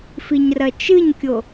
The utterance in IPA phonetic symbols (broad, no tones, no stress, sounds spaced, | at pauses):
f i ɲ r ɐ t͡ʃ ɨ ɲ kʲ o